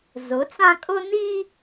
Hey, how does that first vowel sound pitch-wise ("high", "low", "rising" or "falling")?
rising